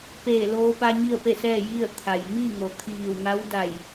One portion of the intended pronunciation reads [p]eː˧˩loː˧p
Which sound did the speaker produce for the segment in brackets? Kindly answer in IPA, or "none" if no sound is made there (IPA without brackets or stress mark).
p